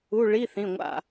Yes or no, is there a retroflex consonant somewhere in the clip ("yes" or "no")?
yes